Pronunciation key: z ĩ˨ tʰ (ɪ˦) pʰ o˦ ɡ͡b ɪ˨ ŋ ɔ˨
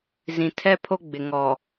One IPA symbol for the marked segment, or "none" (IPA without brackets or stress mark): ɛ˦